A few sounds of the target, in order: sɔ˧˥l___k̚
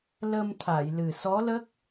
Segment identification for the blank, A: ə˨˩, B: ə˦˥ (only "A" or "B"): B